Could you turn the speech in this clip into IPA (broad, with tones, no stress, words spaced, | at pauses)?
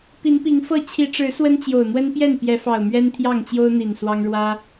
pi˨˦npi˨˦ŋfɤ˥˨ t͡ɕʰi˨˦ʈ͡ʂɻ̩˨˦ swə˦nt͡ɕjo˨˩ʊ̯ n̪wə˦npjɛ˥˨n pjɛ˨˦fɑ˨˩ʊ̯ mɥɛ˦nt̪ʰjɑ˥˨ŋt͡ɕjo˦ʊ̯n̪i˨˩n swɑ˦ŋ ɻwä˦